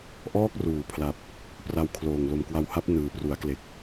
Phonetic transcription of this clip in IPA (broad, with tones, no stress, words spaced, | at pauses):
ʔɔː˥˩k̚ruː˩˦pʰla˨˩p̚ | pra˧wkʰloː˨˩ŋ lo˨˩mkwa˧wha˦˥p̚ nɯː˨˩pru˩˦a̯kle˨˩k̚